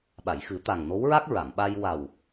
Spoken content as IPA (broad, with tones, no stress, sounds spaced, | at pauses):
ɓ a˨˩˨ j x ɨ˨˩˦ t̪ a˨˩ ŋ n o˧˥ w ɹ a˦˥ k̚ ɹ a˨˩˨ m ɓ a˧ j w a˨˩ w